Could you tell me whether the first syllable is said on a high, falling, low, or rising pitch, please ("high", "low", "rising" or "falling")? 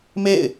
falling